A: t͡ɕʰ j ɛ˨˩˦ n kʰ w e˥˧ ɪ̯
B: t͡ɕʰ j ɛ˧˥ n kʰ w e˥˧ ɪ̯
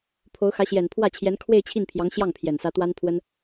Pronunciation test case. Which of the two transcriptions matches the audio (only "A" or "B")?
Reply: B